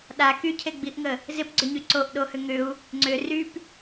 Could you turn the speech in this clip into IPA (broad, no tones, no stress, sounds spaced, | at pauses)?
ɗ a k y cʰ e ɡ͡b i ʔ ŋ ə | z ɪ p ɡ͡ǀ ʏ ɲ y ǀ o ʔ ɗ o h ʏ ŋ ʏ u̯ | ŋ͡ǀ ʏ r y p